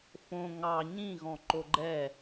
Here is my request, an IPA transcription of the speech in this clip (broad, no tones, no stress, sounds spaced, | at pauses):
f õ ŋ ɑ ɲ ĩ ɣ ɔ̃ ǃ o ɡ͡ǃ ɛ